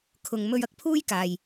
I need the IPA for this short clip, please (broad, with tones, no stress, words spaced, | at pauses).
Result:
kʰʊ˨ŋ mɵ˧ɥɐ˨˥k̚pʰuː˥j kaː˨j